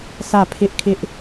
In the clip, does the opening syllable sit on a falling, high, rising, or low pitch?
falling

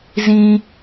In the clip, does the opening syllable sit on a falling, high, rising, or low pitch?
high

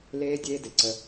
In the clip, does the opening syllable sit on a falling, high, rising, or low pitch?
high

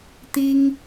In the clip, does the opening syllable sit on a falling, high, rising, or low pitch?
high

